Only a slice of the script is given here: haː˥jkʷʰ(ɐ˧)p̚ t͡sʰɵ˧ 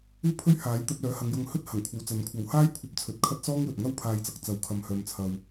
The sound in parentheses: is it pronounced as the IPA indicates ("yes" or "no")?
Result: yes